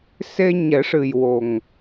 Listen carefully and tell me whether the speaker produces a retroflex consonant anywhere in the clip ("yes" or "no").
yes